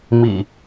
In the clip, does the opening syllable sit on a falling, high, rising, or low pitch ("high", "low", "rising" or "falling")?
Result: low